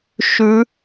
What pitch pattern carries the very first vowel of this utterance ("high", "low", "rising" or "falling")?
rising